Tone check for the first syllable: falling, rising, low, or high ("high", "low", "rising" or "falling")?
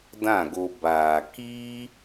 falling